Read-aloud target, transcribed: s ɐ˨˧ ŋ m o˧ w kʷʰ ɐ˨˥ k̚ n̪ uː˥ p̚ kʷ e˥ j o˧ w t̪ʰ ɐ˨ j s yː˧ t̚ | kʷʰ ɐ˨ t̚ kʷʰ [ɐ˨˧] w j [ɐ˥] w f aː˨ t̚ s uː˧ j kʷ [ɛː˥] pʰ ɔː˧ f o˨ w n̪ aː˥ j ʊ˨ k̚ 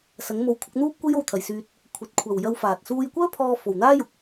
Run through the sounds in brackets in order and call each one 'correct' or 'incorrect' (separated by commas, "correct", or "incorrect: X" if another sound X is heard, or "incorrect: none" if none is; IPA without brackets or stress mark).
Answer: incorrect: ɐ˨, incorrect: ɐ˧, incorrect: œː˥